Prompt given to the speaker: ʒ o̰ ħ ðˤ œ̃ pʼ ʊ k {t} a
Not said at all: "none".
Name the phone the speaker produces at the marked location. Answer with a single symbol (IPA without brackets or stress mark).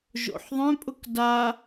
d